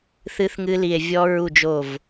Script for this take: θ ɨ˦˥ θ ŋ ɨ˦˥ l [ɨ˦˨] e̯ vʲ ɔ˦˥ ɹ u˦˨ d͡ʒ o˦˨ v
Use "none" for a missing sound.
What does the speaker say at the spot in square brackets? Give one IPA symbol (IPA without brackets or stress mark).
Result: i˦˨